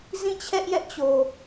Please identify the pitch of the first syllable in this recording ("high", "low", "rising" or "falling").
falling